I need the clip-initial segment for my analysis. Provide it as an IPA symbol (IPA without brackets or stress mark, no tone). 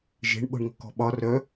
ʒ